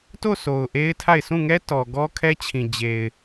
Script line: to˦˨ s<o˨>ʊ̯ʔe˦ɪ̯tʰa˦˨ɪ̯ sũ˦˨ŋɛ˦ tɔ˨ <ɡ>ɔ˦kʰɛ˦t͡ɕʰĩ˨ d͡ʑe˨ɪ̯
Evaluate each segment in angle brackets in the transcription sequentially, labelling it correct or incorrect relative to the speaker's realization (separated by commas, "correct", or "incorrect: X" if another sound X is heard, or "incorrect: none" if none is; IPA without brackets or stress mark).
correct, correct